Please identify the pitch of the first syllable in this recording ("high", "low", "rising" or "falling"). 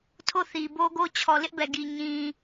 falling